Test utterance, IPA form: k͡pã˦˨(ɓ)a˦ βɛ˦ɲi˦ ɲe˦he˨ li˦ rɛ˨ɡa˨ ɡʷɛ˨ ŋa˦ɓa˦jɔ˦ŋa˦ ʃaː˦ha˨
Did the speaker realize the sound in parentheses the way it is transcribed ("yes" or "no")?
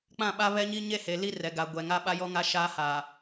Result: yes